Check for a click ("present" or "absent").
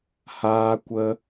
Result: absent